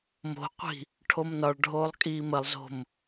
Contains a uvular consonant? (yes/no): yes